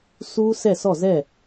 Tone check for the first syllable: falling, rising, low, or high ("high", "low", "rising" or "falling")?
high